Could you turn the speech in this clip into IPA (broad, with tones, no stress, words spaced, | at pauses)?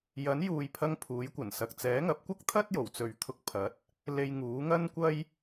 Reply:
jɐ˨˥njuː˨jpʰɐ˧ŋ pʰuː˨˥jkʷɐ˨˩nsɐ˨k̚ t͡sɛː˨˥ŋɐ˨˥p̚kʷɐ˥k̚t̪ʰɐ˥t̚ jo˨˩wt͡sɵ˨ɥt̪ʰʊ˧k̚ pʰɐ˨˥t̚ | le˧jŋuː˨˥ŋɐ˥nkʷɐ˥j